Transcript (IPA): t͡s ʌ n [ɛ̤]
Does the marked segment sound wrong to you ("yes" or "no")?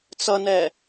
yes